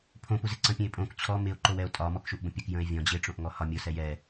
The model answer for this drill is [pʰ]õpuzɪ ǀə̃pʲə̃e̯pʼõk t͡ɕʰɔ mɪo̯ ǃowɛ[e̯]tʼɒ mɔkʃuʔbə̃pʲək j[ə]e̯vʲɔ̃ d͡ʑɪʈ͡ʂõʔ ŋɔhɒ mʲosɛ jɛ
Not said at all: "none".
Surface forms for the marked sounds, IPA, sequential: pʰ, o̯, ə̃

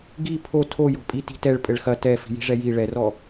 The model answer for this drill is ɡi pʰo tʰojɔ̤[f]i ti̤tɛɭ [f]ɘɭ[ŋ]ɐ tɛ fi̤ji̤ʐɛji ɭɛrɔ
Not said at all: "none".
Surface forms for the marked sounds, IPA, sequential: pʼ, pʼ, x

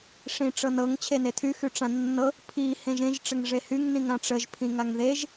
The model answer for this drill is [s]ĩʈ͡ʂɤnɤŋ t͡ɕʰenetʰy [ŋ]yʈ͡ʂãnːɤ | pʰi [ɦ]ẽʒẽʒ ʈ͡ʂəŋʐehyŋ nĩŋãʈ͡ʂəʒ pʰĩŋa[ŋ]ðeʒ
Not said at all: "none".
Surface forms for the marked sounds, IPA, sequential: ʂ, x, h, ŋ

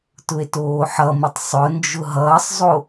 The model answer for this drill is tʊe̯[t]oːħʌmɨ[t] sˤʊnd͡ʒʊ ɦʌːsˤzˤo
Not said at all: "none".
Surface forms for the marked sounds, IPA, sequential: t, tˤ

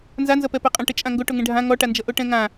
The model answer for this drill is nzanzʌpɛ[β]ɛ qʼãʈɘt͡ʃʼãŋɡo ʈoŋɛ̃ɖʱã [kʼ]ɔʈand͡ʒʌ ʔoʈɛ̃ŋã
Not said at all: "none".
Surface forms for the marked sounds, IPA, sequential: p, ŋ

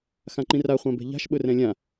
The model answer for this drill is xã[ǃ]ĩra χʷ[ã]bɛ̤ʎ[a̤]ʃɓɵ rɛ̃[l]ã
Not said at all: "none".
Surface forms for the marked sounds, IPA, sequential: ǃ, ã, a̤, lʲ

